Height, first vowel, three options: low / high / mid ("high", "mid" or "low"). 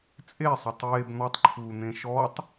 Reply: mid